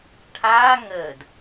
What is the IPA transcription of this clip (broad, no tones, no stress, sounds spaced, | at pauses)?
ʈʰ aː ŋ əː d